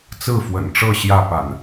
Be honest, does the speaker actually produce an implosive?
no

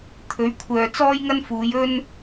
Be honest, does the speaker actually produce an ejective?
no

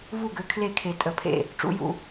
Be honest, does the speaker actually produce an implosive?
no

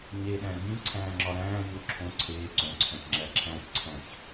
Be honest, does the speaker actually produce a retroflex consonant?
no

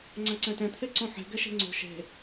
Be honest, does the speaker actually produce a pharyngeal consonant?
yes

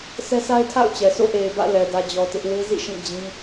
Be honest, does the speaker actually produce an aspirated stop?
yes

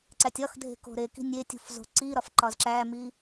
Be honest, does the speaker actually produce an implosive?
no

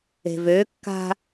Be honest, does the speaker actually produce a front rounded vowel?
yes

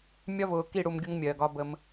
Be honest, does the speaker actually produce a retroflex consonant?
yes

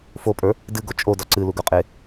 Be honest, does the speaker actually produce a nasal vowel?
no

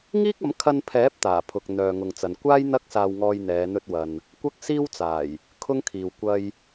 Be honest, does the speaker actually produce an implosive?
no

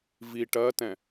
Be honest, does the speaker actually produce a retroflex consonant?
yes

